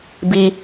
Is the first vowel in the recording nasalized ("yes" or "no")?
no